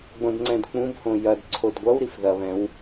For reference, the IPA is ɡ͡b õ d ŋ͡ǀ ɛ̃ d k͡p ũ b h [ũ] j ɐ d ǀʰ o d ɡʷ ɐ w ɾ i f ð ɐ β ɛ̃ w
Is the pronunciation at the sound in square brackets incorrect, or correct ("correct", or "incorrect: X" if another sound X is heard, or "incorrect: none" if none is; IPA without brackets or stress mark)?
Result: incorrect: õ